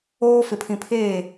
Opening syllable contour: high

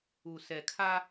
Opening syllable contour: low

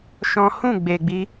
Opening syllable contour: high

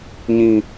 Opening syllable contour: high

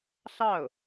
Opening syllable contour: falling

